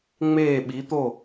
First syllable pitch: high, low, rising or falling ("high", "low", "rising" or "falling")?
falling